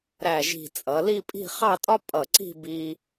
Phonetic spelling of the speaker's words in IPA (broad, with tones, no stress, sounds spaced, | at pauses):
ɾ æ˧˩ ʒ i̤˧˩ t͡sʼ ʌ˩˧ l i˥˧ pʼ i̤˥˧ χ ɑ˥˧ tʼ ɒ˥ pʼ ʌ˧˩ ǀ i̤˥˧ b i˧